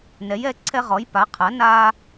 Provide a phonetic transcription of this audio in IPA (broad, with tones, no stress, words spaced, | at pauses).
nɛ˨˥jɛ˨˥ ǀʰɛ˦ʁɔ˨˥jpa˨˥qʰa˨˥ na˦